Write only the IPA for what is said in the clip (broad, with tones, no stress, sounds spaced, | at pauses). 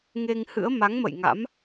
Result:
ŋ e˧ ŋ h ɨ̰˧˥ ə̯ m a˨˦ ŋ m ə̰˧˨ j ŋ a̰˧˥ m